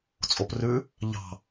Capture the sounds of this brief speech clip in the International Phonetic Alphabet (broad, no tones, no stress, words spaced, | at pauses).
t͡sʼoprʉ | ʎɑ̤